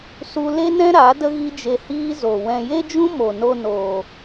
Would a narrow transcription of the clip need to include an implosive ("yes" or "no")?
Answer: no